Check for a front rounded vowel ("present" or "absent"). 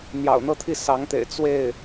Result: absent